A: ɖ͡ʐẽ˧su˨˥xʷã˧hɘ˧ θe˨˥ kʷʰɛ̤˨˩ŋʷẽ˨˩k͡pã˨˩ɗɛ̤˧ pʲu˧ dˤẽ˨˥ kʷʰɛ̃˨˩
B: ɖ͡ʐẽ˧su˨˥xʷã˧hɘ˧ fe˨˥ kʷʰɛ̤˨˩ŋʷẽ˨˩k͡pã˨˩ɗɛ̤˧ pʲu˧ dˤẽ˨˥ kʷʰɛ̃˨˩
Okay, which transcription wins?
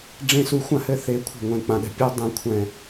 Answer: A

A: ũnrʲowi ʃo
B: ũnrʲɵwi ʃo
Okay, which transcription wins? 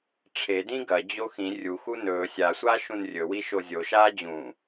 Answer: B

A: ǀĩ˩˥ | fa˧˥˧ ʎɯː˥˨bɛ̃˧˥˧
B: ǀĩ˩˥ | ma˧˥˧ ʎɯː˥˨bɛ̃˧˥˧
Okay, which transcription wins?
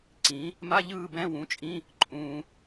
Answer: B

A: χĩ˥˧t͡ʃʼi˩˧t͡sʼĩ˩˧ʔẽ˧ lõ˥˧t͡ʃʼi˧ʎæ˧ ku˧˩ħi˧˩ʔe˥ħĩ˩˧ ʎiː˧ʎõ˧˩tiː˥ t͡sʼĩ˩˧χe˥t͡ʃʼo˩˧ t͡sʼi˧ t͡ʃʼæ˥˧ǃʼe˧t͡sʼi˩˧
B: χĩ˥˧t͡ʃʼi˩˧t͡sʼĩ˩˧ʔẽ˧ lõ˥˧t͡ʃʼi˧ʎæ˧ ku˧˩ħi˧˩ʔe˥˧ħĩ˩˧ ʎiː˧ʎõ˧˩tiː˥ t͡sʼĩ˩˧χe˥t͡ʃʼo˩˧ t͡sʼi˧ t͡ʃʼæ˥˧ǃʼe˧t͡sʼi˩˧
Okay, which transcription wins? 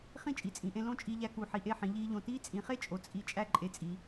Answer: B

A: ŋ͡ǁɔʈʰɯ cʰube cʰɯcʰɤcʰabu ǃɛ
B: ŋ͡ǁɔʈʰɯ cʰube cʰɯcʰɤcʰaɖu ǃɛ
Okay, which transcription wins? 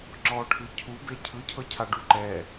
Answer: B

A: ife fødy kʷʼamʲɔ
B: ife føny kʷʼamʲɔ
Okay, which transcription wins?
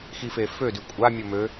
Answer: A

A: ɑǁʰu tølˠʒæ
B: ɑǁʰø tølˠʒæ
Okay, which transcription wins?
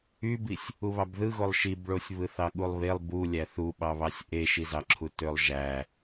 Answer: A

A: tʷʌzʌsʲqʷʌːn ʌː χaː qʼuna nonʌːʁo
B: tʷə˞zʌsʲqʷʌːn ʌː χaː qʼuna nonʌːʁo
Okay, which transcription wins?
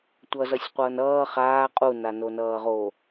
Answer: A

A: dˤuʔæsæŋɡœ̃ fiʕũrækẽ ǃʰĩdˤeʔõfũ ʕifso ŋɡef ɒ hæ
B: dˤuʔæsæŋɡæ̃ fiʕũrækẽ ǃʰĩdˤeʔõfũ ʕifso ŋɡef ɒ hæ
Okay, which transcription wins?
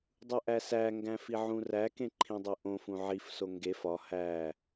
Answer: B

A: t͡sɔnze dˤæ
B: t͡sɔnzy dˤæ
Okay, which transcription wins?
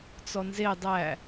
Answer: A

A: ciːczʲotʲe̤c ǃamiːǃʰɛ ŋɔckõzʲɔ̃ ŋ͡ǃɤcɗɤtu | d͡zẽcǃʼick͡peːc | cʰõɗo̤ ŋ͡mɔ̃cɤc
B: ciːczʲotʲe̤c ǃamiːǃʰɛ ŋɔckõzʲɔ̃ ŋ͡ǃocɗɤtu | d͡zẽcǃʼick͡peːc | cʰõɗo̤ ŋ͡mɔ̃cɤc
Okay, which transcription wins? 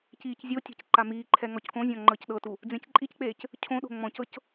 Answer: A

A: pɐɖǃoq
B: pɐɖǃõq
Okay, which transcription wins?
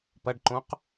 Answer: B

